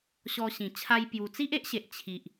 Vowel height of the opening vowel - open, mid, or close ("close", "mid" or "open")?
mid